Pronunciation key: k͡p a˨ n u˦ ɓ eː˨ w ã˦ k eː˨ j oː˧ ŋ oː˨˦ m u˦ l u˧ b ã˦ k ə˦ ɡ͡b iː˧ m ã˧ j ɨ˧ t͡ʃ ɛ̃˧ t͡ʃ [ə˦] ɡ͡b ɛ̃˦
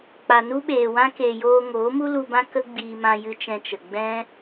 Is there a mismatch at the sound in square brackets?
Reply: yes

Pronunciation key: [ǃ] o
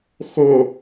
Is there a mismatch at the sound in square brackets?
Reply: yes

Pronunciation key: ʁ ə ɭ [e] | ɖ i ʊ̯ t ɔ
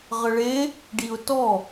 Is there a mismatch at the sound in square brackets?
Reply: no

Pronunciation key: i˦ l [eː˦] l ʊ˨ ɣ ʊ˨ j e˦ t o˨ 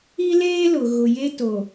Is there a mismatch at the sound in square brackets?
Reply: no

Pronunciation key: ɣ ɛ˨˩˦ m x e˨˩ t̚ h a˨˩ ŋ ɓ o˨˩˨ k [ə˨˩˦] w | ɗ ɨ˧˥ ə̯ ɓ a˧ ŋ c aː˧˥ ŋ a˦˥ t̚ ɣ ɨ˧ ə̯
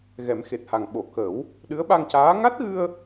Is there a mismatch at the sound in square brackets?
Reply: no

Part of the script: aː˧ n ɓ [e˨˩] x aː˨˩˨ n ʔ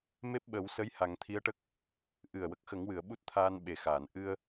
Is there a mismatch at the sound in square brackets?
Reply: no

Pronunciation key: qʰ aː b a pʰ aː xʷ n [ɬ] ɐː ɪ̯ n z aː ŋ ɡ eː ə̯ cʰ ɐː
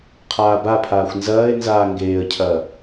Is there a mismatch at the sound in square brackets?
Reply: yes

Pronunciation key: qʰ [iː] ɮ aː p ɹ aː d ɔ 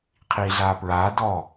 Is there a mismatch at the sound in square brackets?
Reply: no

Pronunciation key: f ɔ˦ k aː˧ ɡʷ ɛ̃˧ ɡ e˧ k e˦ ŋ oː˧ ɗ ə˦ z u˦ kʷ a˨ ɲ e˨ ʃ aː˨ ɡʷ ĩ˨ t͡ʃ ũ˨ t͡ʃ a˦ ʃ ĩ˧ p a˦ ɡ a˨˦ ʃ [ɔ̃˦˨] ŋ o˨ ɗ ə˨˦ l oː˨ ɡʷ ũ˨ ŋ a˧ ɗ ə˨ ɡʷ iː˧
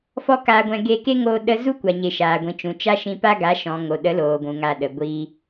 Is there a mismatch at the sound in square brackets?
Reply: yes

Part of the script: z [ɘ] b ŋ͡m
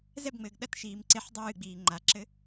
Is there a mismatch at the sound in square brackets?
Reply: yes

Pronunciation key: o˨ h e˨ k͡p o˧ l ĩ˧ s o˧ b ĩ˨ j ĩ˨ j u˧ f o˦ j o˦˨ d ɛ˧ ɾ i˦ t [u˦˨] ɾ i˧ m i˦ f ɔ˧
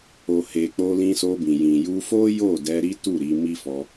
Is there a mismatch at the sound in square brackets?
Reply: no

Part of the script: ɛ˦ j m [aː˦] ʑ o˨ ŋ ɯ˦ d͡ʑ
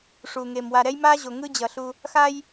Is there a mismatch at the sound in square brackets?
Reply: no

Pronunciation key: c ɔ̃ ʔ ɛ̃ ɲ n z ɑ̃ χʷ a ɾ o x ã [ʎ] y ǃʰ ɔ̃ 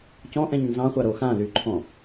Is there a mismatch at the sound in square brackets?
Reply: yes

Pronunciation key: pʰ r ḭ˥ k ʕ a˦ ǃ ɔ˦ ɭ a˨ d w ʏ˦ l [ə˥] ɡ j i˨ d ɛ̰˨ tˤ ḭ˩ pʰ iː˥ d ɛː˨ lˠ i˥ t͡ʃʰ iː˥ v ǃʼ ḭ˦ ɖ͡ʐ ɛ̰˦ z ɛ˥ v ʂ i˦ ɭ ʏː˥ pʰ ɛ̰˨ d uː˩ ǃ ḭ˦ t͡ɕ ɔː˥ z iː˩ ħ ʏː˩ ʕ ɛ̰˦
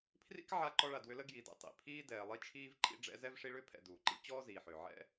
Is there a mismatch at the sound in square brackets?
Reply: no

